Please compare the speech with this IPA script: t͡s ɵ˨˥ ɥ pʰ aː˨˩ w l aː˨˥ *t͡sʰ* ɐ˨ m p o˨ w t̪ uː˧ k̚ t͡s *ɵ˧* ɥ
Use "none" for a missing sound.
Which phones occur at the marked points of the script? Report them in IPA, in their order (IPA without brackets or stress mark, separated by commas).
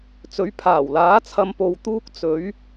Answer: t͡sʰ, ɵ˨˥